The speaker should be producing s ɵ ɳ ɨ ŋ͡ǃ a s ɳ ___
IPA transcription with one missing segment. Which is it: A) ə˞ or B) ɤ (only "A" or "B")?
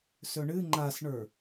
A